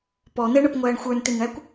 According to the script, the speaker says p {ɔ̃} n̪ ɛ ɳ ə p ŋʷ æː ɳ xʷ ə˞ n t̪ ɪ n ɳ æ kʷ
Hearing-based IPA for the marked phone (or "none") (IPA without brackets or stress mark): ɔ